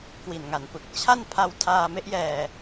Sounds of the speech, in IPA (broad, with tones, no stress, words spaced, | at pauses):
kwi˨˩nŋa˨˩npɯ˨˩k̚ t͡ɕʰa˥˩npʰa˧w tʰaː˧ me˦˥ʔjɛː˧